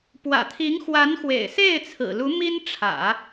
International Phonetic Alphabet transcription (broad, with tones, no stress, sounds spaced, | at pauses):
p w ä̰˨˩ t̪ʰ i˧˥ ŋ x w a˧˥ n x w ḛ˨˩ ɪ̯ s e˥˩ ɪ̯ t͡sʰ ɹ̩˨˩ l u˧˥ m i˥ n ʈ͡ʂʰ ä̰˨˩˦